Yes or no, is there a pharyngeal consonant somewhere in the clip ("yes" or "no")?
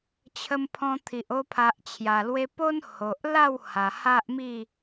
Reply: no